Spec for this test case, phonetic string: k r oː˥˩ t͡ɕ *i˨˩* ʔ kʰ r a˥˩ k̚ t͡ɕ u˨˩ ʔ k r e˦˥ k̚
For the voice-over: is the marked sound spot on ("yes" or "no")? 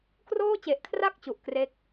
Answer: no